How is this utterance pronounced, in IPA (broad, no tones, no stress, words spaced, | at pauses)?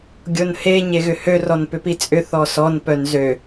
ɡʲonhe ɲeɣʏhø rɔnpʏpit͡sʼʏ θɔsɔn pœnzø